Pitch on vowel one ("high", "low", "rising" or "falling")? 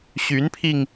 rising